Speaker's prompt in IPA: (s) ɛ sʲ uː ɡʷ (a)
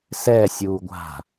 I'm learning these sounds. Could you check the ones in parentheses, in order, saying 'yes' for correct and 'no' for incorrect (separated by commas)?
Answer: yes, no